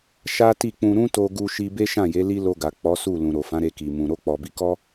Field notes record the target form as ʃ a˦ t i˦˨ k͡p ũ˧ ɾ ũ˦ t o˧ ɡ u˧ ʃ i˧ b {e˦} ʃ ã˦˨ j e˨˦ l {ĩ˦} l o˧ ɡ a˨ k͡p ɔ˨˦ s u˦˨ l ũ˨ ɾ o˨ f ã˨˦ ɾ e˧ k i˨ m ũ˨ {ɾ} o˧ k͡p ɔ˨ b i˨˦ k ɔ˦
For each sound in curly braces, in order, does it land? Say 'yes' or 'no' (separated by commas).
yes, no, yes